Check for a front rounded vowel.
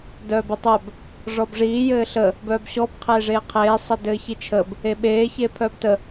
present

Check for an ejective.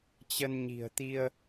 absent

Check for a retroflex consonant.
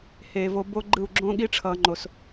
present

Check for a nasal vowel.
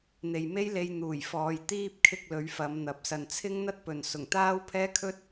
absent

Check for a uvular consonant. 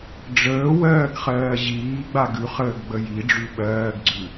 present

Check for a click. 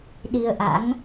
absent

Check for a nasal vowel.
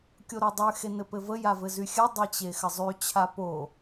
absent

